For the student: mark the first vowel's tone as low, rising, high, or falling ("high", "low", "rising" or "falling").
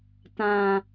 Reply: low